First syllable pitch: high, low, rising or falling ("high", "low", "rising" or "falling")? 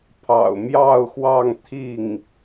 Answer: low